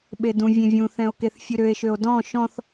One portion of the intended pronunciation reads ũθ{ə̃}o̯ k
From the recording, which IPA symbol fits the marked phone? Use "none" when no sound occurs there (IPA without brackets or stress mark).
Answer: ɛ̃